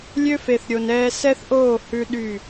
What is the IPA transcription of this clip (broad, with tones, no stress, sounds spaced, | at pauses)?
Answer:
lʲ ø˦ f e˨ θ ɾʲ o˨ n ɛː˦ s ɛ˦ θ ʔ oː˦˨ h ʉ˦ ɗ y˦˨